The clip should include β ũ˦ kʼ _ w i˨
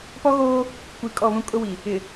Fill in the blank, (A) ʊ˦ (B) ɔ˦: A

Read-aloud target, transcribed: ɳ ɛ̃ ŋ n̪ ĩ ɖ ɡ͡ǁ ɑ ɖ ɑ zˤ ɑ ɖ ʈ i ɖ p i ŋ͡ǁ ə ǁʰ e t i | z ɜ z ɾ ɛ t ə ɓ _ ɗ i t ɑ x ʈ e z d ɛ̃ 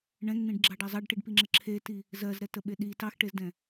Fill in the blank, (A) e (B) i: A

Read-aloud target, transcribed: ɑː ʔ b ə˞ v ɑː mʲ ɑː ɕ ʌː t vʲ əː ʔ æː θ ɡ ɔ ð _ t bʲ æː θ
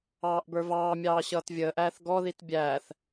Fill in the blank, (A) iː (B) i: B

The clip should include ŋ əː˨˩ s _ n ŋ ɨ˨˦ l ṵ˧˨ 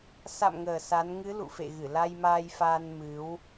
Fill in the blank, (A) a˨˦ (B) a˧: A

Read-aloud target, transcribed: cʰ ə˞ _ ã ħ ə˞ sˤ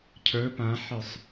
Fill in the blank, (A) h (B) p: B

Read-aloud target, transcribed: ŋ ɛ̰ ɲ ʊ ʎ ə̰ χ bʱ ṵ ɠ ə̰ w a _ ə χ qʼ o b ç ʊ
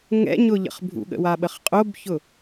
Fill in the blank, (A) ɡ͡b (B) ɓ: B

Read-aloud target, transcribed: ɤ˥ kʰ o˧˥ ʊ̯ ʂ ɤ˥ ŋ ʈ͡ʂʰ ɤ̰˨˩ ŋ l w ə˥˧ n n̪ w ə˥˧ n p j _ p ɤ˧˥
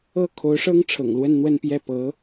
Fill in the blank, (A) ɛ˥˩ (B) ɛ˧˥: A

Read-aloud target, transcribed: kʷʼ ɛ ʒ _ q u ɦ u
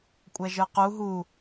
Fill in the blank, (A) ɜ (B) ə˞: B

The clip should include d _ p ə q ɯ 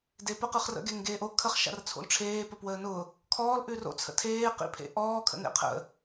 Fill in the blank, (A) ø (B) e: B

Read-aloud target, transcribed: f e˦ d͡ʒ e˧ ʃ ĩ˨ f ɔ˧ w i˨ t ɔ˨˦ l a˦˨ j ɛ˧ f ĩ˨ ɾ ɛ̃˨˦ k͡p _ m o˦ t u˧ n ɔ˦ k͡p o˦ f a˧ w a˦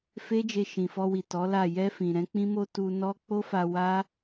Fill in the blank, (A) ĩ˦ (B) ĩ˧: A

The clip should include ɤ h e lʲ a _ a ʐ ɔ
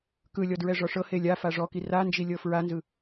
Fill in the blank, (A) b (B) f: B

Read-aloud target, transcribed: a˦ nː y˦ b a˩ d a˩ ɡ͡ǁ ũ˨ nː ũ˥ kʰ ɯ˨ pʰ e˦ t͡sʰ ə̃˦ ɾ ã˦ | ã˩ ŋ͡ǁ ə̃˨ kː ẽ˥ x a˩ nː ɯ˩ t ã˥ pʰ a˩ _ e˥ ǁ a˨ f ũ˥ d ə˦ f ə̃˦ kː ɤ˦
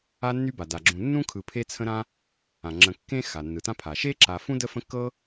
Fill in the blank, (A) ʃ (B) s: A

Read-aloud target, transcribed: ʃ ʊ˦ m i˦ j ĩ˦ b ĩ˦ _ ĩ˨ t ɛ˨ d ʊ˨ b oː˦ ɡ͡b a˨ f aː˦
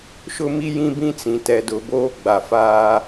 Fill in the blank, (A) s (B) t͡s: B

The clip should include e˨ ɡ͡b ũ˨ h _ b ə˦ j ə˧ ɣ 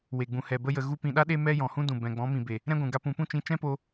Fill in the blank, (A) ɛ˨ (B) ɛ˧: A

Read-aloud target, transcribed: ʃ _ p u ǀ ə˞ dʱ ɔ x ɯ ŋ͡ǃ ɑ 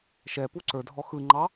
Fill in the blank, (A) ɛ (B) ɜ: A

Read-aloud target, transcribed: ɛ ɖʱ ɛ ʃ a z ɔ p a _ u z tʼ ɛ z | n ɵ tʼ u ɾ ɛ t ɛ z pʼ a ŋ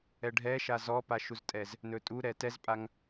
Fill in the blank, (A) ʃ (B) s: A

